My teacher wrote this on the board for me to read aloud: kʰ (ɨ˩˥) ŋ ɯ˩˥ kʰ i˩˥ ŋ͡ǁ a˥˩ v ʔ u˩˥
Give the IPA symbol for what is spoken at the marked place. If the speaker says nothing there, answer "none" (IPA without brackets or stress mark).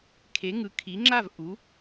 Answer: e˩˥